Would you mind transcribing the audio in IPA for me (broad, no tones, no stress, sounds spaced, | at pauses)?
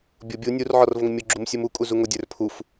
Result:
bʲ ʊ bʲ u nʲ u r ʕ ɔ r v ʊ ŋ mʲ ʊ ɡ͡ǁ u m sʲ u m u kʼ u z u ŋ ʊ dʲ ə˞ r pʰ u f